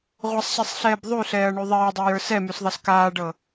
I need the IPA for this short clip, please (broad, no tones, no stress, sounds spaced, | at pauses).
ʁʷ ʌ sˤ ɕ ɛ sˤ ɬ ɛː b ðˤ y ɬ ɛː ɐ̯ ɳ y ðˤ eː dˤ e j ə˞ s ɛ m y s ðˤ ʌ s k aː ɖ ɤ